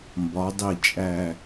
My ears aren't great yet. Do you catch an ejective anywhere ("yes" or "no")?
yes